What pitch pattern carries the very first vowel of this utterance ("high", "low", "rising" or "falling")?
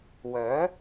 rising